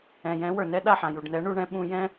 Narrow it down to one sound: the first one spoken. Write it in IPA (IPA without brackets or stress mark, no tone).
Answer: ɛ̃